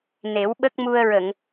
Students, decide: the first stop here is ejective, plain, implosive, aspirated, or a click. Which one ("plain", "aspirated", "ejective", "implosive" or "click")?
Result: implosive